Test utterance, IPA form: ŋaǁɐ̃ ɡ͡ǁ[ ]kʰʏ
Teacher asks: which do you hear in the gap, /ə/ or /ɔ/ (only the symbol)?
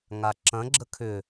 ə